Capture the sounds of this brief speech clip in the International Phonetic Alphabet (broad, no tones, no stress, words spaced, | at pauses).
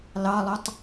lɑlˠotˤ